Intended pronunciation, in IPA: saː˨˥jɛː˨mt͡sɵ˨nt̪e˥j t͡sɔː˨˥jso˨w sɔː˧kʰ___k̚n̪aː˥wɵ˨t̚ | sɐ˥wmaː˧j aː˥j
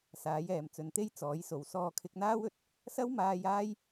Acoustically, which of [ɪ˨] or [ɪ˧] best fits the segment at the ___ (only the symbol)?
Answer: ɪ˧